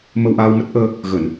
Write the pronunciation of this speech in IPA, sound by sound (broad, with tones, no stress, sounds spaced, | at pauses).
m ə˧ w ʔ aː˧ w m ə˦˥ t̚ ʔ əː˧ | ɣ ə˧˩˨ n